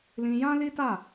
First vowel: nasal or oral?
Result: nasal